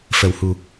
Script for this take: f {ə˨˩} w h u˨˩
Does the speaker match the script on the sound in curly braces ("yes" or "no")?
yes